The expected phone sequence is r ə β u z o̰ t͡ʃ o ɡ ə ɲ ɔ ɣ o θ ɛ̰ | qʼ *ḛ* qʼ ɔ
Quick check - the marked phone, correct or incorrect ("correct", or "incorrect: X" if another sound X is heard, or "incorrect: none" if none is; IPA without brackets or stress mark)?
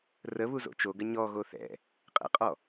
incorrect: ɛ̰